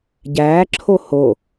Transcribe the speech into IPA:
ɟ æː ǁʰ o h o

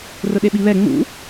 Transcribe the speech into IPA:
r ʊ ɗ e ɓ i β ɛ ŋ͡m ṵ

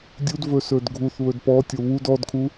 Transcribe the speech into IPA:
dʲ u d v ɵ s ɵ d ɡʱ u θ β ɵ d p ɔ tʲ o β u d ɔ d kʰ u

